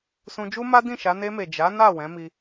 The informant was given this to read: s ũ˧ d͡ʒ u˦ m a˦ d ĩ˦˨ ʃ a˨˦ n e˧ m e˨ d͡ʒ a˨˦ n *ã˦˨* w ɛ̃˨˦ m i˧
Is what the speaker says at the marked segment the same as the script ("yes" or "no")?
no